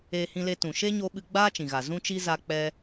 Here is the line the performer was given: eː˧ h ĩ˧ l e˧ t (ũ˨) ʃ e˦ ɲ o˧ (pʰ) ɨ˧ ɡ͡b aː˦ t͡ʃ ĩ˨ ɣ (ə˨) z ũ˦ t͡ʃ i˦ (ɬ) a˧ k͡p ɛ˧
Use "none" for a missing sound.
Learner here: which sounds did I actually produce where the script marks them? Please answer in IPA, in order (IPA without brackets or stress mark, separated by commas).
ũ˨, ɓ, a˨, z